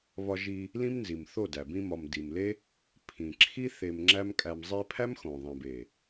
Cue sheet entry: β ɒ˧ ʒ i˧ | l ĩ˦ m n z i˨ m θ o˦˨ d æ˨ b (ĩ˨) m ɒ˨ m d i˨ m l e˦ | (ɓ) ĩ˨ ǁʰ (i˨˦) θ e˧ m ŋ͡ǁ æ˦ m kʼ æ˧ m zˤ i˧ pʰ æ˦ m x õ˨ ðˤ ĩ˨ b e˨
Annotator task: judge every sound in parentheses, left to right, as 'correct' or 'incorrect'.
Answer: incorrect: ĩ˧, incorrect: pʰ, incorrect: i˦

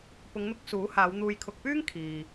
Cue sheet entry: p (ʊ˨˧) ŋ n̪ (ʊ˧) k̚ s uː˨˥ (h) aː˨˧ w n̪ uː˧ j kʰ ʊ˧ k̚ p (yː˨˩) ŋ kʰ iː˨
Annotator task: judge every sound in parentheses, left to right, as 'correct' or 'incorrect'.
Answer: correct, correct, correct, incorrect: yː˥

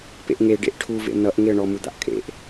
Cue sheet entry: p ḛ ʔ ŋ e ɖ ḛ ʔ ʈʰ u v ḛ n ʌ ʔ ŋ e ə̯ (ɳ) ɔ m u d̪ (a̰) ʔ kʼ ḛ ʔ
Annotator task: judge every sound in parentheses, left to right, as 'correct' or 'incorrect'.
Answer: correct, correct

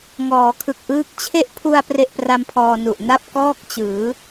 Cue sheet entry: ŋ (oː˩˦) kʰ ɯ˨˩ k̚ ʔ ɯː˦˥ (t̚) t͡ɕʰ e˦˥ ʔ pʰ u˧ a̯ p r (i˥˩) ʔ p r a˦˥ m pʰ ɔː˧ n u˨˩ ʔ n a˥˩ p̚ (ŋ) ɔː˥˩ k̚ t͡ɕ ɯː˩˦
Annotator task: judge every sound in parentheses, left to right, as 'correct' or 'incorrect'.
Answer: incorrect: ɔː˩˦, incorrect: k̚, incorrect: e˥˩, incorrect: k

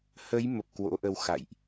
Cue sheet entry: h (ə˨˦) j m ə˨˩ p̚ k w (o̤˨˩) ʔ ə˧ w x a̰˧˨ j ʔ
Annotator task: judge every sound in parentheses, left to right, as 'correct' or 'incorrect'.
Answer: correct, incorrect: o̰˧˥

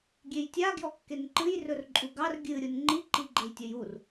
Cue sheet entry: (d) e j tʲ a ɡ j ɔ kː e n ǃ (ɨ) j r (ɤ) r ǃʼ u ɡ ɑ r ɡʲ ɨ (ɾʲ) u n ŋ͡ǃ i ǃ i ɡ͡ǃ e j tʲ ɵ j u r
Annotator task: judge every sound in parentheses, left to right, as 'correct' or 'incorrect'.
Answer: incorrect: ɡʲ, correct, incorrect: ɵ, correct

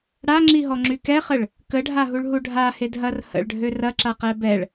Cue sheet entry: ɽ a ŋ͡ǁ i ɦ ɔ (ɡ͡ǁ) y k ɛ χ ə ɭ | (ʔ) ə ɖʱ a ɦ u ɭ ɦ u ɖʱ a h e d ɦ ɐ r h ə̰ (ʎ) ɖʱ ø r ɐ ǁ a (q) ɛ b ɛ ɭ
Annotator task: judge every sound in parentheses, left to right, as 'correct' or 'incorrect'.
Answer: incorrect: ŋ͡ǁ, incorrect: k, incorrect: ɭ, correct

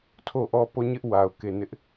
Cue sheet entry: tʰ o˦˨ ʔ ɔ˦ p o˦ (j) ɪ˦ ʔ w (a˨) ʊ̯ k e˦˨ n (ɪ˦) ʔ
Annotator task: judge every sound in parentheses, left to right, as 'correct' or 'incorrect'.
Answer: incorrect: ɲ, correct, correct

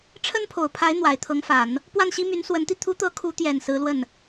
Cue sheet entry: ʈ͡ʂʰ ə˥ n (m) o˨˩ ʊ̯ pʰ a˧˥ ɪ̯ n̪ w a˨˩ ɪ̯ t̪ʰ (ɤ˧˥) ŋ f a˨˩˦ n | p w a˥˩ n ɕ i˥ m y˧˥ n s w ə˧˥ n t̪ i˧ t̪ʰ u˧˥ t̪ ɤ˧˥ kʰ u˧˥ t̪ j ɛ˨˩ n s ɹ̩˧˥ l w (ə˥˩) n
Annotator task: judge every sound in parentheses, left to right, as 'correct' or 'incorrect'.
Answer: incorrect: pʰ, correct, correct

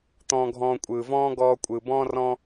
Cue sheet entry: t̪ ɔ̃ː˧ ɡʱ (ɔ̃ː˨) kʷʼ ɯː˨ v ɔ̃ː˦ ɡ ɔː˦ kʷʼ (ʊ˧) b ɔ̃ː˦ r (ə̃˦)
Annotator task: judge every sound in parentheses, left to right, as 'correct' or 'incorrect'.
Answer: incorrect: ɔ̃ː˧, incorrect: ɯ˧, incorrect: ɔ̃˦

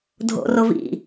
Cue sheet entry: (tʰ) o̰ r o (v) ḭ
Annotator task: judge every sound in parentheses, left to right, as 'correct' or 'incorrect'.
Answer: incorrect: dʱ, correct

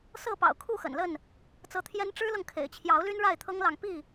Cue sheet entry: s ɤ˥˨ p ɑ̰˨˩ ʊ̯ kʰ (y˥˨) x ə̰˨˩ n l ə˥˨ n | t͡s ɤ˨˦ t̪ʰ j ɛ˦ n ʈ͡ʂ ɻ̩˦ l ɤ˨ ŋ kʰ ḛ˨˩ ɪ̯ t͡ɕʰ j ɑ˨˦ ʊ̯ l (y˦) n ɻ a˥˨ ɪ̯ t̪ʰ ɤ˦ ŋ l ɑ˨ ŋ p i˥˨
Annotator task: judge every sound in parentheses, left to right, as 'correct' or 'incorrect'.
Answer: incorrect: u˥˨, correct

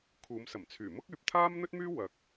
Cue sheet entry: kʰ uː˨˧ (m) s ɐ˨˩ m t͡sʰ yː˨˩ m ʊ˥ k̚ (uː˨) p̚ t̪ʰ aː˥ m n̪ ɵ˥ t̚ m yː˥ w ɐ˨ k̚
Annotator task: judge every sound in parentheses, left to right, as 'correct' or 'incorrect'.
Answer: correct, incorrect: yː˨

